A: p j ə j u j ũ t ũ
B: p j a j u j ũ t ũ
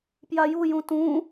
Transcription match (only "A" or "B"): B